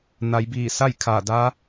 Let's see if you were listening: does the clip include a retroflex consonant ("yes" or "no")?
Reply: no